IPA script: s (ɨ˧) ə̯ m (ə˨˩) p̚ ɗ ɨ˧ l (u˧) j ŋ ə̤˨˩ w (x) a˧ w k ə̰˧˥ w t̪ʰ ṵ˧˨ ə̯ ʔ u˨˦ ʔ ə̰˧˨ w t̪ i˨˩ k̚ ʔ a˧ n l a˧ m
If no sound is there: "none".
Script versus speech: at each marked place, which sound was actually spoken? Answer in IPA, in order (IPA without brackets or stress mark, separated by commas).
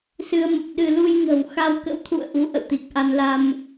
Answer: ɨ˧, ə˨˩, u˧, x